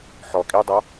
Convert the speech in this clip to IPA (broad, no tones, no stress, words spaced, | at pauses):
ħɔ kʼidˤɤ